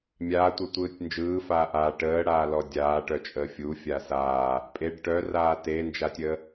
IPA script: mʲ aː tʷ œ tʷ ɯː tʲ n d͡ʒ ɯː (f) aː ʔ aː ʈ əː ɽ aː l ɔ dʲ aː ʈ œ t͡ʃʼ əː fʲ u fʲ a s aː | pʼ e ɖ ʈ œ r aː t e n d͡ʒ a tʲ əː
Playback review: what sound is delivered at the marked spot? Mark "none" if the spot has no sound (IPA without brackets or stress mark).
f